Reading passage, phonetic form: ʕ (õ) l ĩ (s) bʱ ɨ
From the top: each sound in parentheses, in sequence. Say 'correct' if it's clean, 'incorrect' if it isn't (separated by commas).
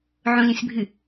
correct, correct